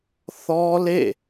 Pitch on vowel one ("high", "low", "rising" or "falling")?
high